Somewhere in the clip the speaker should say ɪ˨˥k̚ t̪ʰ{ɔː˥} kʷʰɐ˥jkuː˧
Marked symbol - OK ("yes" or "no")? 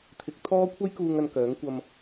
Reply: yes